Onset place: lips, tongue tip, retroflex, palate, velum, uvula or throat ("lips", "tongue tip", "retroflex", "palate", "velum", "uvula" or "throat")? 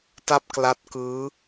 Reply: tongue tip